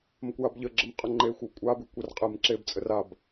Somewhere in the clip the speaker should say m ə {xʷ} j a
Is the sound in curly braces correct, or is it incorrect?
incorrect